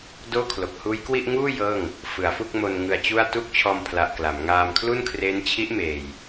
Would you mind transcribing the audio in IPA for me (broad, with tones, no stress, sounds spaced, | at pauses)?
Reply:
d oː˥˩ kʰ l o˨˩ k̚ h uː˦˥ j k w i˥˩ ʔ ŋ uː˥˩ j ɤː˥˩ ŋ | f ɯ˩˦ a̯ f u˥˩ k̚ m o˧ n ŋ ɯ˧ a̯ t͡ɕ u˥˩ a̯ t u˥˩ k̚ t͡ɕʰ ɔː˧ m pʰ l a˨˩ ʔ k l a˩˦ m ŋ aː˧ m kʰ l u˥˩ n kʰ r eː˦˥ n t͡ɕʰ i˦˥ ʔ m eː˨˩ j